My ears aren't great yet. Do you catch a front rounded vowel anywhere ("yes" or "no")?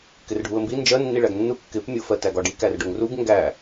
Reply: no